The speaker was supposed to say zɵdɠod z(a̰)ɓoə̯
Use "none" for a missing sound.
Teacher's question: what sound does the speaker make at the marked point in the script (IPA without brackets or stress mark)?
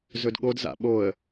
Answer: a̰